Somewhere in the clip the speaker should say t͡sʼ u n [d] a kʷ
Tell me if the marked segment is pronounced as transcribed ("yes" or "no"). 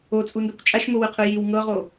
yes